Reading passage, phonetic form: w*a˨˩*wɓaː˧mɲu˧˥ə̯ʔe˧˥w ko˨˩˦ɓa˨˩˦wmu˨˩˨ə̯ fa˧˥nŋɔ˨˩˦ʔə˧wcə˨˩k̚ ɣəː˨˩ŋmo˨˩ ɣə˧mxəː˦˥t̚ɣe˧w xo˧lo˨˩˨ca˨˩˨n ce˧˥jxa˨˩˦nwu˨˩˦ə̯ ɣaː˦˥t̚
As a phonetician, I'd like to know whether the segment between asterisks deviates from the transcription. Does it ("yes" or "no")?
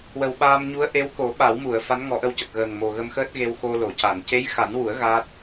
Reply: yes